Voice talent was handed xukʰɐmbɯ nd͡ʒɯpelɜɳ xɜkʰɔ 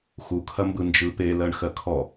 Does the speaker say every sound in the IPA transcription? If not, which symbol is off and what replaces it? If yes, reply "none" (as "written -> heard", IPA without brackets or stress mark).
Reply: none